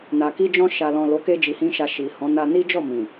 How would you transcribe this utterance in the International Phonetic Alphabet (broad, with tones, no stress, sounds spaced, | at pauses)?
n a˨ k i˧ d͡ʒ ɔ̃˧ ʃ a˨ l ɔ̃˨ l o˨˦ k e˧ d͡ʒ i˧ h ĩ˦ ʃ a˧ ʃ i˨ h ɔ̃˨˦ n a˧ n i˦ d͡ʒ ɔ˦˨ m ĩ˨